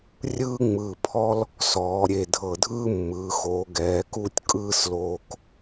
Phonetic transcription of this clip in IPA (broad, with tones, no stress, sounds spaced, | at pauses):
rʲ ɯː˥ ŋ͡m ɯː˧˩ pʰ ɔ˥ l | s ɔː˩˧ ɾʲ e˧˩ dʱ ɤ˧˩ dʱ ɯː˥ mː ɯː˩˧ x oː˩˧ ɡ ɛː˩˧ k u˥˧ tʲ kʼ ɯː˥˧ s l oː˧ k